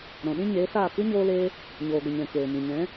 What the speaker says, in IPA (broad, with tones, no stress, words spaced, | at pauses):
ɾɔ̃˨ɗĩ˦ɲeː˨˦saː˦˨ kɨ˦ɲoː˧leː˧ | ɲoː˨ɡʷə˨ɲɛ̃˨ keː˨mĩ˨ ɲɛ̃˨˦